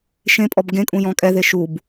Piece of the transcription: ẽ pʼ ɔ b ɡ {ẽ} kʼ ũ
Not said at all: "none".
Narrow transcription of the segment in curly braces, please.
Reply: ẽ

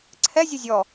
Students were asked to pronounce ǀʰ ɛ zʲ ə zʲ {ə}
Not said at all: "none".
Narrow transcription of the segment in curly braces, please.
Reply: ɔ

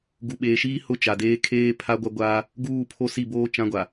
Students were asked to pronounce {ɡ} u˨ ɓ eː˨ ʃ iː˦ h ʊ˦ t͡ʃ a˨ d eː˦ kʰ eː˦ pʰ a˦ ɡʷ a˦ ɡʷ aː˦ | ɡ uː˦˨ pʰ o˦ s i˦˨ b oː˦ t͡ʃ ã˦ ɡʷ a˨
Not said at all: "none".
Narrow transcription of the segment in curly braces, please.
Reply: ɡ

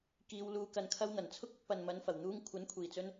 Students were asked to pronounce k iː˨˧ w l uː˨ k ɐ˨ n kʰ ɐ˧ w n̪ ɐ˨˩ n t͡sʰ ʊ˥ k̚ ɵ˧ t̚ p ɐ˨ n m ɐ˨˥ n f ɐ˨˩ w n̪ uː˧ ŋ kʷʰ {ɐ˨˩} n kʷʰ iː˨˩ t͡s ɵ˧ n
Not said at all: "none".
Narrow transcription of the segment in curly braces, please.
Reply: ɐ˨˥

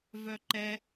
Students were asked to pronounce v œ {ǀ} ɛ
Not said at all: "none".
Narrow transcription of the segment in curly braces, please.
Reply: ǃ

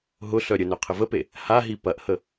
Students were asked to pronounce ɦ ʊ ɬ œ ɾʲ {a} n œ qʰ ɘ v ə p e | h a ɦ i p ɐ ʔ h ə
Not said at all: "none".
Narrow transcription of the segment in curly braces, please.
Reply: ə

